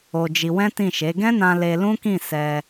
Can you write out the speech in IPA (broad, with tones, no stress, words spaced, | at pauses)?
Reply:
o˧d͡ʒi˧ wɛ̃˦tĩ˦˨ʃe˨˦ ɡɛ̃˦nã˧ le˧lũ˦kĩ˦˨ sɛ˧